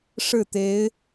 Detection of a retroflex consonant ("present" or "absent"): present